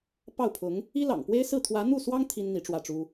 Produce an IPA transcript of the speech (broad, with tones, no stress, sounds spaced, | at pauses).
p ɑ˥˩ ʊ̯ pʰ ʊ˧˥ ŋ | i˥ l ɑ̰˨˩ ŋ p w e˥ ɪ̯ s ɹ̩˥˩ t̪ʰ w ä˧˥ n̪ u˥˩ s w ɑ˥ ŋ t̪ʰ i˥ n n̪ i˧˥ ʈ͡ʂ w ä˥˩ ʈ͡ʂ u˥